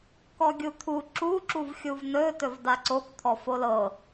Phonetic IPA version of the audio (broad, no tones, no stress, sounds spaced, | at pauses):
k ɔ ɡʲ u t̪ʰ u ǁ u ǁ u v xʲ u v n ɵ t ɵ v d a ǀ o k t̪ʰ ɔ f o l ɤ